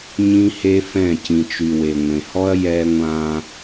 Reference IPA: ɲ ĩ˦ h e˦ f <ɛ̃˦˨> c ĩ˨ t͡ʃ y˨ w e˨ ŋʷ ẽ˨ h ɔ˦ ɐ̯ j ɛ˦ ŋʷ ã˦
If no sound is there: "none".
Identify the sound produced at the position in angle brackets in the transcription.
ɛ̃˦˨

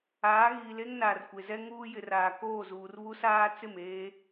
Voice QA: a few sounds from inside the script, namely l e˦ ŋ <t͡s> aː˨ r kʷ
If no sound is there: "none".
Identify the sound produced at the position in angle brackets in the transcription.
n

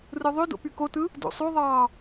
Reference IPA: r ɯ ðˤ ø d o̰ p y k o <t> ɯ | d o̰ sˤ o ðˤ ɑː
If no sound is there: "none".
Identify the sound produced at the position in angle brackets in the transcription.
t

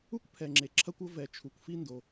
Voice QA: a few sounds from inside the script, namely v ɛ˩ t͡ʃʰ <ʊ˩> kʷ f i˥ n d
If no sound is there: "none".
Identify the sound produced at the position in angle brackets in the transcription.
u˩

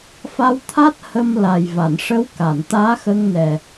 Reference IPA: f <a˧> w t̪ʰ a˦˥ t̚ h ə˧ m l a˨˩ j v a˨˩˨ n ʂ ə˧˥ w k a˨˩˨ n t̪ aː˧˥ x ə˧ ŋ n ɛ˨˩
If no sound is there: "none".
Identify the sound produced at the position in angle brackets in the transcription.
a˧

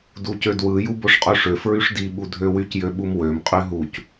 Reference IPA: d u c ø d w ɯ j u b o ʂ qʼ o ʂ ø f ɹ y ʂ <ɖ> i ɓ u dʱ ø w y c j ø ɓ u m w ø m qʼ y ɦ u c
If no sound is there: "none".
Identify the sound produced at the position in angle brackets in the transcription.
d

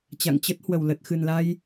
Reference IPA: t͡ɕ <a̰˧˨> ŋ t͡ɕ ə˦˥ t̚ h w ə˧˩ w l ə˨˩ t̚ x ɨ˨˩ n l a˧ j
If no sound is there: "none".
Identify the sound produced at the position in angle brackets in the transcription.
a̰˧˨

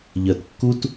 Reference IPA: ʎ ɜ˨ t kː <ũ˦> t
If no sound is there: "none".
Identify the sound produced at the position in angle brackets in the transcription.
u˦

